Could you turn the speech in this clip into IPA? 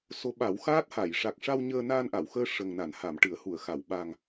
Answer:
s o˧˥ ɓ a˨˩˦ w x aː˦˥ t̚ h a˨˩˨ j ʂ a˨˩ k̚ ʂ a˧ w ɲ əː˧ n aː˧ n ʔ a˨˩˨ w x əː˧ ʂ ə˨˩ ŋ n a˨˩˨ n h a˨˩˨ m ʈ ɨ˨˩˨ ə̯ h u˨˩˨ ə̯ x a˨˩˨ w ɓ a˨˩ ŋ

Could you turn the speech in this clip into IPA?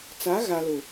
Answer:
t͡s a˨˦ ɣ a˨ l ʊ˨

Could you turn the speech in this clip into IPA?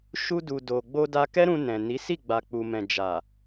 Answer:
ʃ u˧ d u˨ d o˨ ɡ͡b o˧ d a˧ k ɛ˦ ɾ ũ˧ n ɛ̃˨ n i˨˦ s i˦˨ ɡ͡b a˨ k͡p u˨ m ɛ̃˨ d͡ʒ a˨

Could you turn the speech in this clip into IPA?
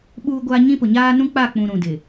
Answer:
ɓ uː˦ ɡʷ aː˦ ɲ ĩ˦ p ʊ˨ ɲ aː˦ n ũ˦ k͡p a˦˨ k͡p ũ˨ ɾ ũ˨ d ɪ˨

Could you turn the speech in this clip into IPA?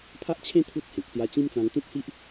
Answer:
pʰ a˦ ʔ t͡ɕʰ ẽ˦ t̪ʰ u˦ t̚ h ẽ˨ k̚ s j a˧ t͡ɕ ĩ˦ m t͡s ã˧ ŋ t̪ ĩ˦ t̚ h i˦ ʔ

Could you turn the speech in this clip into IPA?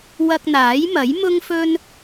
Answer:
w ɐ˧ k̚ n̪ aː˨˥ j m ɐ˨˥ j m ʊ˥ ŋ f ɵ˥ n

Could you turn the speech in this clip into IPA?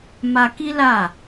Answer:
m a˧ k i˦ l a˦˨

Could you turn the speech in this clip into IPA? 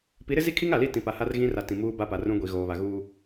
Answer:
p i˨˦ ɾ ɪ˦ z i˦ kʰ i˦ ŋ a˨ l i˦˨ t ĩ˨ p a˨ h a˦ r ɣ ĩ˦ r a˨ t ĩ˨ m uː˦ b a˦ p a˨ r ũ˦ ɡʷ i˨ ɣ oː˨ β a˨ ɣ uː˦

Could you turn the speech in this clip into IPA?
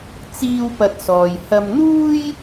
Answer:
t͡s iː˧ w p ɐ˧ t̚ s ɔː˨ j h ɐ˧ m n̪ uː˥ j

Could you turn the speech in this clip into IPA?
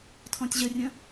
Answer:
tʰ ɔ̃ tʲ ʑ ə rʲ ə̃

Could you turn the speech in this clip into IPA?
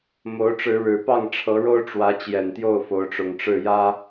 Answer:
m o˨˦ ʊ̯ ʈ͡ʂ ɻ̩˨˦ ɻ ɻ̩˨˩ p ɑ˥˨ ŋ ʈ͡ʂʰ ɤ˨˦ ɻ o˦ ʊ̯ ʈ͡ʂ w ä˨˦ t͡ɕ j ɛ˨˩ n t̪ j o˥˨ ʊ̯ f o˨˦ ʊ̯ ʈ͡ʂ ʊ˨˩ ŋ ʈ͡ʂ ɻ̩˥˨ j ä˦

